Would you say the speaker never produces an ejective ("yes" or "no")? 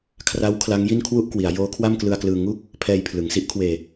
yes